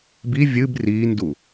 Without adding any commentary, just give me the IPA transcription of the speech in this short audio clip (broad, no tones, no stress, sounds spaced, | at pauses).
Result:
b i vʲ ɨ b r iː n d u